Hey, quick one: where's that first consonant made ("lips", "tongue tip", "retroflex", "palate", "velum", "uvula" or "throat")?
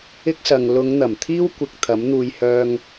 velum